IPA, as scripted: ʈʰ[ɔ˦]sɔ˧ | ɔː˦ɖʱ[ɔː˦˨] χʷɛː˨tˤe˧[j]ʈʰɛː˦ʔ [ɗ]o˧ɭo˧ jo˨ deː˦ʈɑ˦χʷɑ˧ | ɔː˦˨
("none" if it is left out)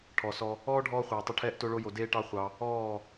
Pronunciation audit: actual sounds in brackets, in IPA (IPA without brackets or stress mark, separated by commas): ɔ˨, ɔː˧, none, t